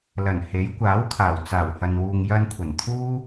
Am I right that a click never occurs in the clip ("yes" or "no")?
yes